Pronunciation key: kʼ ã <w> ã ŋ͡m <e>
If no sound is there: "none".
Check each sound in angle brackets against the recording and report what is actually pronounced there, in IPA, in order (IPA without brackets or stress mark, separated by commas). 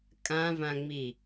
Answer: v, i